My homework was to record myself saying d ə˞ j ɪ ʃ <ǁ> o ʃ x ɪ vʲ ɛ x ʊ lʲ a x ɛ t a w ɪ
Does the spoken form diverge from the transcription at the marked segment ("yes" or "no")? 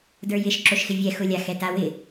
no